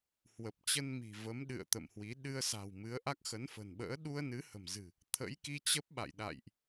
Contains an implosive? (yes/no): yes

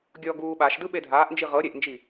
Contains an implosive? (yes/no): yes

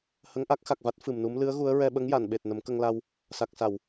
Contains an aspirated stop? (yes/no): no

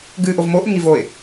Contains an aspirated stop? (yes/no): no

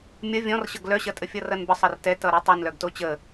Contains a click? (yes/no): no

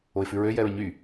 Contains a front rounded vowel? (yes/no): yes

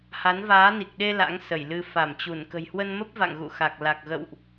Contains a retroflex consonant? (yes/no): no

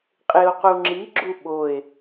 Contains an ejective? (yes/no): yes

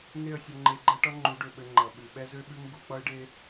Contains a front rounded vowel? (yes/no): yes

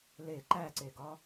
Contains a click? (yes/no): yes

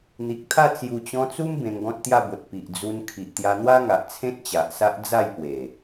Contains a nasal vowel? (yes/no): yes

